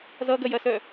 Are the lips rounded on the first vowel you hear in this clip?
no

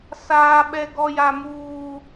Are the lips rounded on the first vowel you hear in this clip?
no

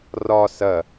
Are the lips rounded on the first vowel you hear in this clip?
yes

